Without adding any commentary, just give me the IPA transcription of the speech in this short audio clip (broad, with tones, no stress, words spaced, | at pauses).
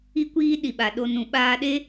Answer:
i˧kʷiː˧ ɗi˨ɓa˨ɗo˧ nũ˨ɓaː˧ɗe˦